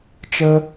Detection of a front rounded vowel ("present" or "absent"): absent